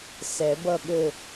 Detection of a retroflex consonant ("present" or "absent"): absent